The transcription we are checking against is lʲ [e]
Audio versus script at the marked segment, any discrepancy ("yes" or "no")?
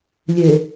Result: no